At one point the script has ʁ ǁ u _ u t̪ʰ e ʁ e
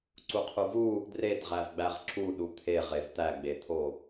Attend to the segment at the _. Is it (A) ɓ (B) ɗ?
B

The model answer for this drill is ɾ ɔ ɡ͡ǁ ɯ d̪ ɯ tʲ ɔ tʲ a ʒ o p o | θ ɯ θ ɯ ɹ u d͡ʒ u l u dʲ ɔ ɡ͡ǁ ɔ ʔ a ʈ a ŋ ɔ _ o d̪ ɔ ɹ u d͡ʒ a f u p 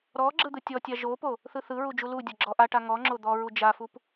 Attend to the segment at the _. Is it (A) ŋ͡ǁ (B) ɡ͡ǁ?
A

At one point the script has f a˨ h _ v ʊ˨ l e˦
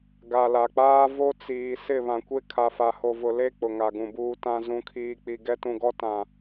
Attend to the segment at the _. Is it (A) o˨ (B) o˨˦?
A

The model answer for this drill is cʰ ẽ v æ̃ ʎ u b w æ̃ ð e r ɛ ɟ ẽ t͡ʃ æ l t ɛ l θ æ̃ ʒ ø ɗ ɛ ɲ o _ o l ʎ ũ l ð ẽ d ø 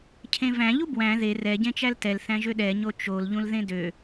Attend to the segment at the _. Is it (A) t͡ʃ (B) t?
A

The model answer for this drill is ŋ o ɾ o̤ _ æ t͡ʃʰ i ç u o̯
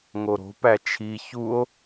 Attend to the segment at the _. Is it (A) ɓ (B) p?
B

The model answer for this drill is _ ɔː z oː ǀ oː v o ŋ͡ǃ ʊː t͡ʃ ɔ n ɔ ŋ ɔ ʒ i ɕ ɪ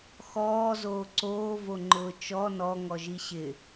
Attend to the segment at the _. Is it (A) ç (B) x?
B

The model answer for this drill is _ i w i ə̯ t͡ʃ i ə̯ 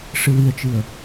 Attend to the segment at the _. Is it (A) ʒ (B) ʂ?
B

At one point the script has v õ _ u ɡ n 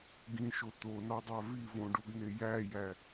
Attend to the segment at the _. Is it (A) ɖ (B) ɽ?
A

